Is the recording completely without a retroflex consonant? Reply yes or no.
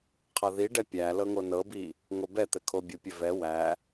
no